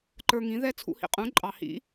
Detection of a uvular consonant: present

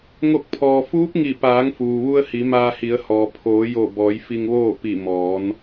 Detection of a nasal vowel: absent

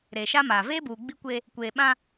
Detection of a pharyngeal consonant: absent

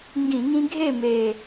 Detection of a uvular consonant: absent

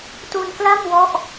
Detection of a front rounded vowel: absent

